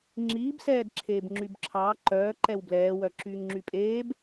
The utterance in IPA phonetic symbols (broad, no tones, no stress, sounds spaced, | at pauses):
ŋ͡ǁ iː b s ɛː d ǁʰ eː b ŋ͡ǁ y b ǁʰ ɑː ǃ œː ǃ ɛ w b l ɛː w œ ǁ yː ŋ ŋ͡ǁ y pʼ eː b